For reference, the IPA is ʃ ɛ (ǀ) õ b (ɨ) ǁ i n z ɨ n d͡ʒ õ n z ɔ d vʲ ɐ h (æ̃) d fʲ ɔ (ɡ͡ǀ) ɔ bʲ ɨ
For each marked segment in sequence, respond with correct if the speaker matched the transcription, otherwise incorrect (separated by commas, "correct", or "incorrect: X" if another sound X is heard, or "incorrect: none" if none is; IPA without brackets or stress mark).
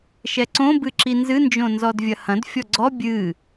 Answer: correct, correct, incorrect: ɐ̃, correct